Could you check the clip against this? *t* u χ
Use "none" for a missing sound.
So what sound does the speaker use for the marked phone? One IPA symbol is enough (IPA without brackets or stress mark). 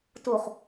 t